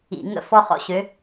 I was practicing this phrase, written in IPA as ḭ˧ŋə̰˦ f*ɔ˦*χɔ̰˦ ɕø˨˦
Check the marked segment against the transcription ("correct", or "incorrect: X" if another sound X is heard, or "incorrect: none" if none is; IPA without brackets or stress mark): correct